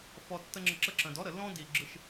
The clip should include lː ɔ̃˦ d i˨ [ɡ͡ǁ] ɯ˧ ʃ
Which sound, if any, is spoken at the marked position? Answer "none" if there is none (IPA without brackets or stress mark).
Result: ɡ͡ǁ